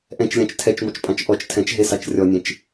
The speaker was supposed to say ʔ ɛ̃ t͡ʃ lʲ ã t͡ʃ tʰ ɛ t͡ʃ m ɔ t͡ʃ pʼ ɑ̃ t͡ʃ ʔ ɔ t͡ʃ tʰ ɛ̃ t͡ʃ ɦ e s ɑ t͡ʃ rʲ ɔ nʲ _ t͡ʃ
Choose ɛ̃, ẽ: ẽ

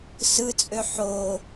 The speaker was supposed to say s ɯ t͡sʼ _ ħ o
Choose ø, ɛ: ø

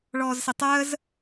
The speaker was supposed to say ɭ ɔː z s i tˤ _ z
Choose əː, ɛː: əː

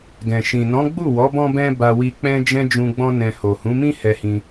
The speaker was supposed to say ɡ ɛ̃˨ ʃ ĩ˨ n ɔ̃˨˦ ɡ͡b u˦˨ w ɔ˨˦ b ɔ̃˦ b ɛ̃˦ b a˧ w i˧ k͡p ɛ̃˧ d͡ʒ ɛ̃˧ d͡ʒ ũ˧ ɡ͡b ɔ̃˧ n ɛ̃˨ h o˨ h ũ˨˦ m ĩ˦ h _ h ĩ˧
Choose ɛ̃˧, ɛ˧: ɛ˧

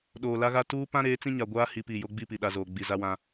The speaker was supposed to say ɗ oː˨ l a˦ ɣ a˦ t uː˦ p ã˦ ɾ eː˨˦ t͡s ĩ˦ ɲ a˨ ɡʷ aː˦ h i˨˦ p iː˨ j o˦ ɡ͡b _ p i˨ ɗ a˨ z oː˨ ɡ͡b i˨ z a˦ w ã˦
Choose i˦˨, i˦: i˦˨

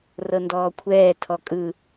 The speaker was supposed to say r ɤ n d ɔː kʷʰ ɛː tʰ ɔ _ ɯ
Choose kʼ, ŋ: kʼ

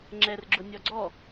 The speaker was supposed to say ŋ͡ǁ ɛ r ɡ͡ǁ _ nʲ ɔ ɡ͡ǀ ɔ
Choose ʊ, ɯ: ʊ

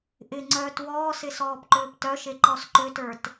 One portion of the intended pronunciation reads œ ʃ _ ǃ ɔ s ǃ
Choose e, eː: e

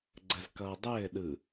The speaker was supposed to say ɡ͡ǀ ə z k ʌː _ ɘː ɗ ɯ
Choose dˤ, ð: dˤ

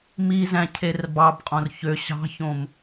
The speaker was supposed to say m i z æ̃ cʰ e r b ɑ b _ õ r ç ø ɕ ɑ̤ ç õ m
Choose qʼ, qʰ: qʼ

